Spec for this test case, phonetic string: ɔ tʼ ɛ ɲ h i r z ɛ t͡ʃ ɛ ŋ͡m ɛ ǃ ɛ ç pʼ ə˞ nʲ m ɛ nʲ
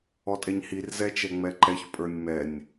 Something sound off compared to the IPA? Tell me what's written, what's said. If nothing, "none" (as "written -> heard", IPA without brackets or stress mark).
none